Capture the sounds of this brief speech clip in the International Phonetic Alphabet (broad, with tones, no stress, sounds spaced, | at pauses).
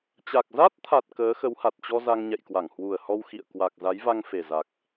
t͡ɕ a˨˩ k̚ z a˦˥ t̚ t̪ʰ a˨˩ t̚ k əː˨˦ x ə˨˦ w h a˨˩ t̚ t͡ɕ ɔ˧ z a˧ ŋ ɲ ɛ̰˧˨ j k w a˧˩ ŋ h w u˨˩ ə̯ h ɔ˧ w x ḭ˧˨ ə̯ k w a˨˩ k̚ z a˨˦ j v a˧ ŋ f e˨˩ z a˨˩ k̚